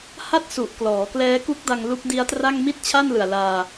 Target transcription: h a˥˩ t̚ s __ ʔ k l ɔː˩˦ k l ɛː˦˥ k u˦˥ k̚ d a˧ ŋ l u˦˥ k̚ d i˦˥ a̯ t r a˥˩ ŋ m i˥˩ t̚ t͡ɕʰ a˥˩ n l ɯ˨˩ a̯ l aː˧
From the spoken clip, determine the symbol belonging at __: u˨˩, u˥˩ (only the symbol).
u˨˩